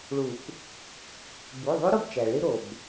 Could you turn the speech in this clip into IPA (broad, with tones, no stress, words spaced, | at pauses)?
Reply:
ɭu˨˩˦k | bu˩˧˩ðˤu˦˥ ɾo˥˨bt͡ʃæ˩ɭi˦˥ ɾo˩b